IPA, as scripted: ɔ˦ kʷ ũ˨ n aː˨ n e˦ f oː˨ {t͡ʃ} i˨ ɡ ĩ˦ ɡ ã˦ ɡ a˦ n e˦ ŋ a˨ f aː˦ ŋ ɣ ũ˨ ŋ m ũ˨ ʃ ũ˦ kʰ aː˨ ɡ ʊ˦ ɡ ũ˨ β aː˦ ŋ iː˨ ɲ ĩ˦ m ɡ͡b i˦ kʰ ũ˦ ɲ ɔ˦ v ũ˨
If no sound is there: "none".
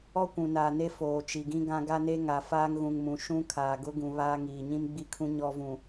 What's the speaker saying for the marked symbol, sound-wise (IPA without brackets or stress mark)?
t͡ʃ